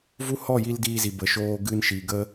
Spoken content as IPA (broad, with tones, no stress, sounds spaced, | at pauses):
v u˦ h ɔ˦˨ j i˧ l d iː˧ z i˨ b ə˨ ʃ oː˧ ɡ ɨ˧ n ʃ i˨ ɡ ə˦